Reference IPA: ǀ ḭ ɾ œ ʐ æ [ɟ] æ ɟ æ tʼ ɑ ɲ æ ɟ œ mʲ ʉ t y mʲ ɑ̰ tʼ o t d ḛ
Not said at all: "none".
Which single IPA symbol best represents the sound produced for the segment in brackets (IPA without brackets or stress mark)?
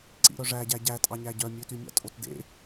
ɟ